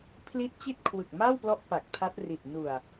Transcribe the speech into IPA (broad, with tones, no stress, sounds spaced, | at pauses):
pʰ l i˥˩ t̚ t͡ɕ i˥˩ t̚ kʰ w ɯ˨˩ k̚ m a˥˩ w p l ɔ˦˥ ʔ p a˨˩ k̚ tʰ a˦˥ t̚ r i˨˩ t̚ n u˨˩ a̯